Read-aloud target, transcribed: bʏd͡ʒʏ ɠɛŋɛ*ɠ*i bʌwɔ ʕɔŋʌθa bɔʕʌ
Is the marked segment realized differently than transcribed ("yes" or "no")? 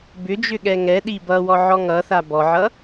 yes